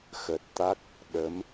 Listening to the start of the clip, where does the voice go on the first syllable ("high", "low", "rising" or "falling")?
low